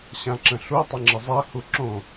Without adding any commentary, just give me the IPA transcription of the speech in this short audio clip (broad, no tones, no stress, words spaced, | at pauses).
ɕãǁə̃ɬu tˤəŋ͡ǁəzˤɛ huǁõ